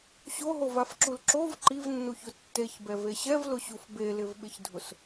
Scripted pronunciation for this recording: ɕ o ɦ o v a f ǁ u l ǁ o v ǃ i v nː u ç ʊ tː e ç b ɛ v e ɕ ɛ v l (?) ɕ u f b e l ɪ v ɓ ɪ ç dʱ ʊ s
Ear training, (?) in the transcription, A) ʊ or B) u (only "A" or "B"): A